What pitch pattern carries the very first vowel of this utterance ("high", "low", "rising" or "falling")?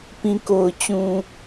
low